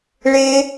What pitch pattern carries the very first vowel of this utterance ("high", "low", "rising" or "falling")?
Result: high